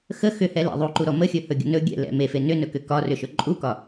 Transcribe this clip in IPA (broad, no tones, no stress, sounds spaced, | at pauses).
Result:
x ə x ʏ h ɛ l ɛ̰ ðˤ u ǃ u ɾ ɔ m ə xʲ ɵ h ɵ ɡʲ ə̰ n ɵ ɡʲ ɛ̰ l ɛ̰ m e f e n ʏ n ɵ k ʏ k ɒ r ʏ ʃ ɵ ǃʼ u k ɒ